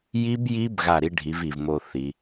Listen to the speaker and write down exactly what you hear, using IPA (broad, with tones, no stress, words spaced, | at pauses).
ji˦˥bji˦˥b ɣa˥˩ ɾi˦˥ɖʱi˩˥vi˨˩v mo˧ θi˩˧